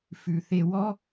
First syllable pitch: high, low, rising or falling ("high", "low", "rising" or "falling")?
low